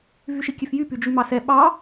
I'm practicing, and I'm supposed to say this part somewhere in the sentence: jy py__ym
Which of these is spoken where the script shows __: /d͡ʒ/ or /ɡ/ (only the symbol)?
d͡ʒ